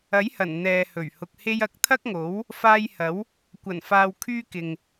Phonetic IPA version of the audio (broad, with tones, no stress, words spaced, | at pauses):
ɐ˨˥jhɐ˨˩n n̪ɛː˨hɵ˨˩ɥhʊ˨k̚ he˧jɐ˨˥k̚ t̪ʰɐ˥k̚ŋo˨˥w | faː˧jhɐ˨˥w | kʷɐ˨˩nfaː˨wkʰyː˧ kɪ˨ŋ